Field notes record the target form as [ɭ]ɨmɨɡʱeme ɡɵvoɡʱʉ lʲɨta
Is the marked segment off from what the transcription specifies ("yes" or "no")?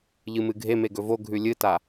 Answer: yes